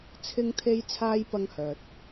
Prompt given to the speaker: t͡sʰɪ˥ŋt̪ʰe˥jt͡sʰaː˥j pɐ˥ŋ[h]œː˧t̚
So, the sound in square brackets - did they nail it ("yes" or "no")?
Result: yes